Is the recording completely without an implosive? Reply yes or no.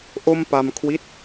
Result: yes